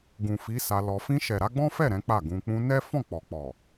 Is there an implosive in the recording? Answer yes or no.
no